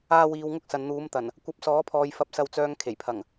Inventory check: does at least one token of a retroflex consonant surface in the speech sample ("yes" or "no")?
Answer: no